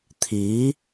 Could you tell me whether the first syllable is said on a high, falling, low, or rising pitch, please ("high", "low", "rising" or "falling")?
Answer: rising